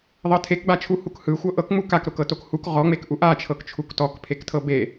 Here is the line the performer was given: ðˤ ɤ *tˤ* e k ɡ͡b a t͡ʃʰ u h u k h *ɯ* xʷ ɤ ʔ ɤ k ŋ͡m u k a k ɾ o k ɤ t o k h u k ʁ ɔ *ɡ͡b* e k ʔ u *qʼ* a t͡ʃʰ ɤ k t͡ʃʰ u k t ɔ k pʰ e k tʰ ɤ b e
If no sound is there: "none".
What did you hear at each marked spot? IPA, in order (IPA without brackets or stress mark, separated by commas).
tʰ, ɯ, ŋ͡m, ʔ